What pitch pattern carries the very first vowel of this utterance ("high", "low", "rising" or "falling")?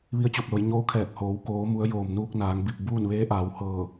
rising